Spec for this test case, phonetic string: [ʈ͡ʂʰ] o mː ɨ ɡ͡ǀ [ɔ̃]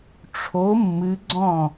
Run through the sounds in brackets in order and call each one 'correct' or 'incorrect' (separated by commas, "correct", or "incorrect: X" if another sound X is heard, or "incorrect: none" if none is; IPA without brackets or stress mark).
correct, correct